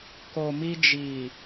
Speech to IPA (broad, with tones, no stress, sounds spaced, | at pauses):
k o˨ m i˧ d͡ʒ i˨